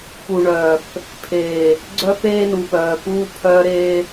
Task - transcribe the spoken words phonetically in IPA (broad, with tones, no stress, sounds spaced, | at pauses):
p u˨ ɳ œː˨ f | pʰ eː˨ | ɡ͡ǀ œ˦ f eː˦ n u˨ p œː˨ p uː˦ pʰ œː˦ ɾ eː˦